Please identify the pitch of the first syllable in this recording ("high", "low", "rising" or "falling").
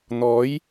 rising